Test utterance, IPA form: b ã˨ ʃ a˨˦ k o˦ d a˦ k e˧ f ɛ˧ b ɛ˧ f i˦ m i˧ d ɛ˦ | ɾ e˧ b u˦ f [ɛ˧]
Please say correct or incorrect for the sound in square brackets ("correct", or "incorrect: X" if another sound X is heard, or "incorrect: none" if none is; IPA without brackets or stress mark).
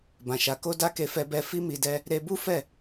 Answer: incorrect: ɛ˦˨